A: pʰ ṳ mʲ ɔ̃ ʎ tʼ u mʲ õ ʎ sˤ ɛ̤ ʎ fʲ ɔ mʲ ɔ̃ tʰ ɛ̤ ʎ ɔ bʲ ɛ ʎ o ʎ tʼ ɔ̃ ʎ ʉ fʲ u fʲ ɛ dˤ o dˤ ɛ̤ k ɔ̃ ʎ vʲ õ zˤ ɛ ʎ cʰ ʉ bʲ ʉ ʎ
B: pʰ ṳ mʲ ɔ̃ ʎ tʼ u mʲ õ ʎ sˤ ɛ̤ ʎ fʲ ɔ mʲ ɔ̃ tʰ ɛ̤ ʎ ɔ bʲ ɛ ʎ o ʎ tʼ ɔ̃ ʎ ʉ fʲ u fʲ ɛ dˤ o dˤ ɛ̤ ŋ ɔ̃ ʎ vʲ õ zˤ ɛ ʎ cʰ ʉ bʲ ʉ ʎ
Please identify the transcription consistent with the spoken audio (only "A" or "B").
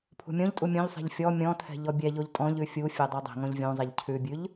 B